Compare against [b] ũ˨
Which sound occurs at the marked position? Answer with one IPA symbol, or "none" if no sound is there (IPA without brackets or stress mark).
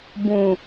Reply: b